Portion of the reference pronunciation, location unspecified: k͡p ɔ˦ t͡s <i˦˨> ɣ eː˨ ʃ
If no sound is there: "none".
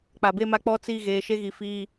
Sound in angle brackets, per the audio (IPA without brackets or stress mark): i˦˨